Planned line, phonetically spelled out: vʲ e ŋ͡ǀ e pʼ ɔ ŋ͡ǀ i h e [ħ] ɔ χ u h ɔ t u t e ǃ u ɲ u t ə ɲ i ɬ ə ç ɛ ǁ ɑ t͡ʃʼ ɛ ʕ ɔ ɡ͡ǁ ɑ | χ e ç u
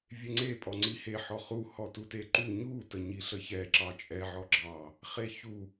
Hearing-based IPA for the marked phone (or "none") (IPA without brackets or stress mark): ħ